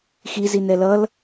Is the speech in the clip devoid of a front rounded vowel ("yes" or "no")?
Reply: yes